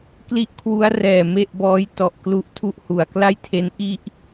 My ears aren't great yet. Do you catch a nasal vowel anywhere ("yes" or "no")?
no